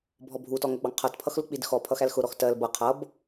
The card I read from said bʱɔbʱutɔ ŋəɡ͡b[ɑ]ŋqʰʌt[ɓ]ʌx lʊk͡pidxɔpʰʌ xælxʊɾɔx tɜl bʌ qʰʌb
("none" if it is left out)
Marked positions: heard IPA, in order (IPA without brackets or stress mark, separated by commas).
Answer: ɑ, pʰ